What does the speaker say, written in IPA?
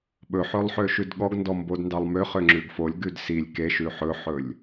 ɓ ɵ ħ ø lˠ ħ ø ʃ ʉ d ɠ ɔ ɡ n d ɔ m b o d n d ɑ lˠ m ø χ ø ŋ͡ǁ ʉ ɡ f o lʲ ɡ ʉ d s i lʲ k e ʃ ʉ ħ ɵ ħ ɵ lʲ

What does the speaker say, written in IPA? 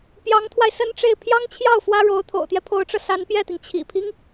p j ɑ˧˥ ŋ t̪ʰ w a˧ ɪ̯ s ə˥ n ʈ͡ʂ e˥˩ ɪ̯ pʰ j ɑ˥ ŋ t͡ɕʰ j ɑ˥˩ ʊ̯ f w ä˥ ɻ o˧˥ ʊ̯ t̪ʰ o̰˨˩ ʊ̯ t̪ j ɛ˦ pʰ o˧˥ ʊ̯ ʈ͡ʂ ɤ˧ s a˧˥ n p j ɛ˥˩ t̪ i˩ ŋ t͡ɕʰ ḭ˨˩ pʰ i˦ ŋ

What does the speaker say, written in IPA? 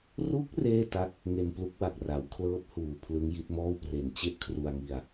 r u˦˥ k̚ r eː˥˩ t a˦˥ k̚ | ŋ e˧ n p l u˦˥ k̚ w a˨˩ k̚ r a˩˦ w kʰ l ɤː˦˥ p̚ h uː˨˩ pʰ l ɯ˦˥ ŋ j i˦˥ t̚ m ɔː˥˩ w p r e˨˩ n t͡ɕ e˥˩ ʔ kʰ r u˧ a̯ ŋ i˧ a̯

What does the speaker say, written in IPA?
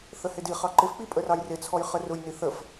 θ ə h ɪ d i χ ɑ ǃ ɪ f k͡p i pʼ ə r ɑ j r ɪ t͡sʰ ɔ j χ ə r ʊ j n i θ ə f

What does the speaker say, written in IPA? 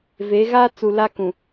v e˨˦ ɣ a˦ t͡s u˨ l a˦ k ũ˨

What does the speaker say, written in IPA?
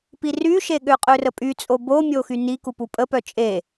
p i r y ʃ e ɠ ø qʼ ø r ə pʼ y t͡sʼ o b o mʲ o x y n i k u p u pʼ ə p œ t͡ʃʼ e

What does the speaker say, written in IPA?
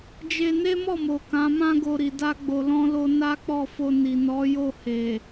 d͡ʒ e˧ n e˦ m ɔ˦˨ m o˨ k ã˨˦ m ã˦ ɡ o˧ ɾ i˨ d a˧ ɡ͡b o˨ l ɔ̃˧ l o˧ n a˦ k͡p ɔ˦˨ f o˧ n i˨ n ɔ˨˦ j o˦˨ h e˨

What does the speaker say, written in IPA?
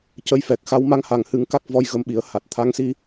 c ə˧˥ j f ɛ˨˩ k̚ x a˧˥ w m a˧˥ ŋ h a˨˩ ŋ h ɨ˨˩˦ ŋ k a˦˥ k̚ v ɔ˧ j ɣ ə˧ m ɓ i˨˩˦ ə̯ h a˨˩ t̚ t̪ʰ a˧˥ ŋ s i˧

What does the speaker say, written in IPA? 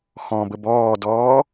x ɔ̃ b ə b ɔː d ɔː

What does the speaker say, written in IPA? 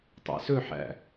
tˤ æ̰ s ɵ ħ æ̰

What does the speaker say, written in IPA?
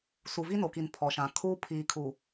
s u˨ v i˦ n o˨ k i˨ n pʰ ɔ˨ ʃ ã˨ kʰ uː˦ pʰ iː˨ kʰ u˨

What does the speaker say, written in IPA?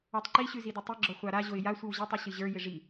ɔ tˤ ǃ i ɕ ʉ z i d ɪ tˤ i ɡ͡ǁ ɔ χʷ a ɾ a ʑ o ɪ̯ j a sʷ ɨ w ʑ ɪ tˤ u ɕ ɨ ʑ ə˞ j ɪ ʐ i

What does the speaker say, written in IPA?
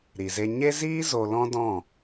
ɾ i˨ z e˧ ɲ e˦ z iː˦ z o˧ l ɔ̃˦ d ɔ̃˦˨

